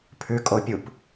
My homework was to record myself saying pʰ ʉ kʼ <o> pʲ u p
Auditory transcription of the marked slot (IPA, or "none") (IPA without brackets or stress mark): o